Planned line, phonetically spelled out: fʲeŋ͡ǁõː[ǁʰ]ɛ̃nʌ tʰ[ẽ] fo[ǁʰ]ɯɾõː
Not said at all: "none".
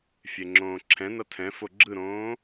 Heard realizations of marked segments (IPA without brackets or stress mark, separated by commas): ǁʰ, ɛ̃, ɡ͡ǁ